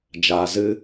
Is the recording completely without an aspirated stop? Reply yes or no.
yes